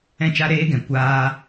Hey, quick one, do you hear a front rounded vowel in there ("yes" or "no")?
no